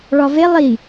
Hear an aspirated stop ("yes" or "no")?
no